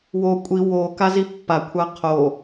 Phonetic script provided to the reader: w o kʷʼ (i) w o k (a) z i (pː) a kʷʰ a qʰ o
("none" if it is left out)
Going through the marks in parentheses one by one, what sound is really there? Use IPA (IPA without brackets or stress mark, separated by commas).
i, a, pː